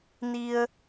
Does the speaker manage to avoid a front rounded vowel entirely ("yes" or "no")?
yes